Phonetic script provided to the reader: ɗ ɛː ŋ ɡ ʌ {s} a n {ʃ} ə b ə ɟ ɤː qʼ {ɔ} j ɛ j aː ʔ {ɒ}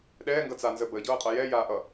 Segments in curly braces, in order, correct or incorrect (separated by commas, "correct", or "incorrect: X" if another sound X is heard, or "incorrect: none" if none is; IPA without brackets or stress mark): incorrect: t͡s, incorrect: z, incorrect: ʌ, incorrect: ʌ